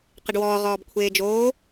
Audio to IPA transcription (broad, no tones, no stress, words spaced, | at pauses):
qɪɖwɔː ʁɔːbkʷʰeːd͡ʒoː